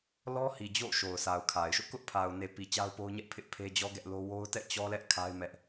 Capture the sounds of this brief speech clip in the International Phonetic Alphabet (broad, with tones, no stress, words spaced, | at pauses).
lɔ˦hi˨ d͡ʑo̰˦˨ ʃo˨ʊ̯sa˨ʊ̯kʰa˨ɪ̯ʃʊ˦ʔ kʊ˦ʔpʰa˨ʊ̯ne˨pi˨ t͡ɕa˦ʊ̯po˦ʊ̯ɲɛ˦ʔpʰɪ˦ʔ pʰe˦d͡ʑɔ˦ɡɛ˦ʔ lo˦ wo˦ʊ̯tɛ̰˦˨t͡ɕɔ˦lɛ˦ʔ kʰa˦ɪ̯mɛ˦ʔ